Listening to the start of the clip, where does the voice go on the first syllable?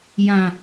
low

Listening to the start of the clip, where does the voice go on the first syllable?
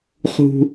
low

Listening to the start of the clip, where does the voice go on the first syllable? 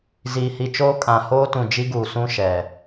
low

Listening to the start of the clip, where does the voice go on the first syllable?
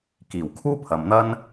low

